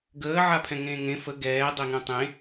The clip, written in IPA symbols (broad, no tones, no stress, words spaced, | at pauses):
ɡəː ʕapʰɛ̃ŋẽːŋẽ fə ɡɛː dˤeŋɛ̃tˤẽ